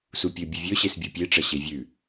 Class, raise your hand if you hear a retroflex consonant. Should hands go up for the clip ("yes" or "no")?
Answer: yes